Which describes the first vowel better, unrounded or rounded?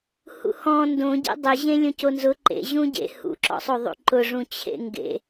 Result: rounded